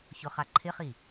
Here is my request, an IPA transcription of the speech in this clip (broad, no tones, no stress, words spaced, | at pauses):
çʊχaǃʰɪχi